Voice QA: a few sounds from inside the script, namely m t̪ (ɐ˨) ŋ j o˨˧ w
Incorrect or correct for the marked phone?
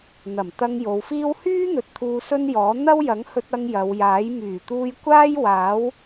incorrect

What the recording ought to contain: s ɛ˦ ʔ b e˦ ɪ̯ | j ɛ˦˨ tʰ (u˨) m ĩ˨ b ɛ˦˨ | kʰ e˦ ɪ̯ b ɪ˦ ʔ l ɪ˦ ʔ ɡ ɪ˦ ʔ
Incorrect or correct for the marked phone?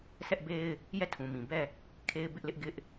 incorrect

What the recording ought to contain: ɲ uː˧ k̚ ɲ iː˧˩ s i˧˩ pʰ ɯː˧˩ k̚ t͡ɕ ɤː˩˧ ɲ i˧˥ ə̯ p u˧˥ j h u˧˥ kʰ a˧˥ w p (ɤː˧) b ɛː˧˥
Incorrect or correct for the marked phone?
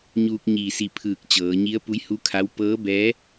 incorrect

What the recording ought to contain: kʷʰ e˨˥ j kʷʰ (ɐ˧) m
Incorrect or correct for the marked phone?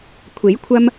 correct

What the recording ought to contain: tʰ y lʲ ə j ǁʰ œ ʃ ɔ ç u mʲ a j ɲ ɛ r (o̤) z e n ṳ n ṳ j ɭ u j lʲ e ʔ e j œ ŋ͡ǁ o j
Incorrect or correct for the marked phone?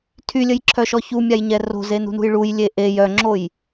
correct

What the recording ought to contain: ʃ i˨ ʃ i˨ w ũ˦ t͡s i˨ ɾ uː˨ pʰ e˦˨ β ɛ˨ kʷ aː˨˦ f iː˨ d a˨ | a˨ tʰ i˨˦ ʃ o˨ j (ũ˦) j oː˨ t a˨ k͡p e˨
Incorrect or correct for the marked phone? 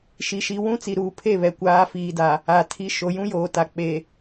correct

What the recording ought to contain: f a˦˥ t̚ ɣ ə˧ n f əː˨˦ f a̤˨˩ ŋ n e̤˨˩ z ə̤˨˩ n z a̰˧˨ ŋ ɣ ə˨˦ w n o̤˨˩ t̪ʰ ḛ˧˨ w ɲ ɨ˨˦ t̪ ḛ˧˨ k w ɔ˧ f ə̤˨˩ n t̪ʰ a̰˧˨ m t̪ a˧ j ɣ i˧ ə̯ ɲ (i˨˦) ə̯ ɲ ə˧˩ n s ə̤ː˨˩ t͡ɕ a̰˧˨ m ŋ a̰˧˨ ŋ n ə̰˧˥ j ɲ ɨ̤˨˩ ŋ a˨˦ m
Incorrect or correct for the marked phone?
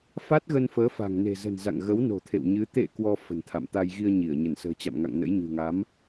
incorrect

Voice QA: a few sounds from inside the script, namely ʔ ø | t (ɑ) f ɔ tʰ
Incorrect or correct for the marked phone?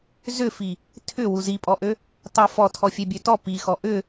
correct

